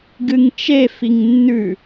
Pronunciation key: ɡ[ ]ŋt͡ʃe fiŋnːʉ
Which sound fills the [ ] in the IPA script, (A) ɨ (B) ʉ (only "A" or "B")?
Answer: A